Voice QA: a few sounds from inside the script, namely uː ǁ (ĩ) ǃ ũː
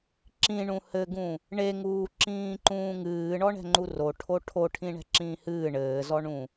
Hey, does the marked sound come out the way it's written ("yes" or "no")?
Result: no